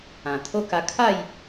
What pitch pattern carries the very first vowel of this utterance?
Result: low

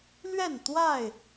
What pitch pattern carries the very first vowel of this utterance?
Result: falling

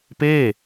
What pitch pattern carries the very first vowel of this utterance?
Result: falling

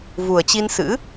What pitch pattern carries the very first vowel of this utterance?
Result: low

